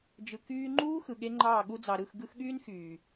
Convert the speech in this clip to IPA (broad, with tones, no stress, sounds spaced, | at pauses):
d͡ʒ ɯ˨ k yː˧ ŋ͡ǃ uː˦ x ɯ˨ ɠ e˦ ŋ͡ǃ ɑː˦˨ ɠ u˧ d͡z ɑ˨ ɾ ɯ˦˨ x ɡ ɯ˧ x ɠ yː˦ n x yː˨